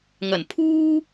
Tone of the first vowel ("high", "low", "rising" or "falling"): low